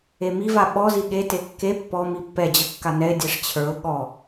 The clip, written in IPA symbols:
e m i v a ɓ ɔ z i ɠ e t e kː e pː ɔ m i pː ɛ d͡ʑ ə kː a n ɛ ɪ̯ dʲ ɛ ʂ t͡ɕʰ ə˞ ʊ̯ ɠ ɔ

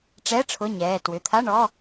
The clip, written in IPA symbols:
ʈ͡ʂ ɛ˧˥˧ ʈ͡ʂʰ ʊ˧˥˧ ɲ ɛː˩˧˩ t w ʏ˩˧˩ t̪ʰ a˧˥˧ ɳ ɔ˧˥˧

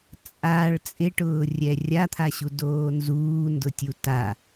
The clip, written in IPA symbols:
t͡sʼ a ɭ t͡sʼ ɪ ʈ ʊː rʲ ɛ rʲ a t̪ʰ a ɕ u d oː n z uː n d ʊ tʲ u t a

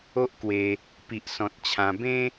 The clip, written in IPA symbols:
o˦ ʔ k w e˧ | p i˨ ʔ s ɔ̃˨ t̚ t͡ɕʰ ã˧ b ẽ˦

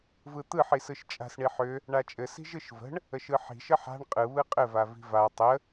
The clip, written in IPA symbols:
v ɯ t̪ ɯ ħ i s ɯ ʃ t͡ʃʼ a̤ s ɳ i ħ ʏ | ɳ a t͡ʃʼ ɘ s i̤ ʒ ɯ ʃ v ə̤ ɳ | ə ʃ ɯ ħ i̤ ʃ ə ħ a̤ ɳ qʼ ɯ β ɯ qʼ ɘ v a v i̤ v a tˤ ə

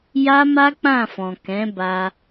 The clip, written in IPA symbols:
j a˦ m a˦ k͡p ã˦˨ f ɔ̃˨ k ɛ̃˨˦ b a˧

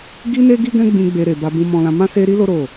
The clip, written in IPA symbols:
ɡ i˦ n e˦ ɡ i˦ ɡ ɛ̃˦ ɡ͡b ĩ˧ ɡ͡b e˧ ɾ e˨ b a˧ b ũ˧ m ɔ̃˧ l ã˧ m ã˦ s e˦ ɾ i˦ l o˦ ɾ o˦˨

